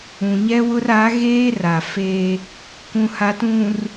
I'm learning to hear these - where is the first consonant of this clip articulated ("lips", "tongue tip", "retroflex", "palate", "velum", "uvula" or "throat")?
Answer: palate